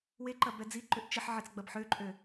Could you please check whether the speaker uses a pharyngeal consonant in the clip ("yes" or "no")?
yes